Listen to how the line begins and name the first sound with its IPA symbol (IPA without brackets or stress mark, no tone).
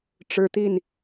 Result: ʈ͡ʂ